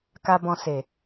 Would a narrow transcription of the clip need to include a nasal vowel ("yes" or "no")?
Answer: yes